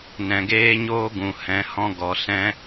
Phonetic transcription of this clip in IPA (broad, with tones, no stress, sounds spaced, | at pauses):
n ɛ̃˨ ɡ eː˦ ɲ oː˦ ɡ ũ˨ h ɛ̃˨˦ h ɔ̃˦ ɡ ɔ˨˦ s ɛ̃˦